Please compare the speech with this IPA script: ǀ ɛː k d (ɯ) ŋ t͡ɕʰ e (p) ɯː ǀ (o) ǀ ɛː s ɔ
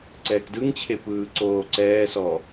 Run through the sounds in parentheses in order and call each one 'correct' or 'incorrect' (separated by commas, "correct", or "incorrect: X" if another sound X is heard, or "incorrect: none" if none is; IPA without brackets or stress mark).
correct, correct, incorrect: oː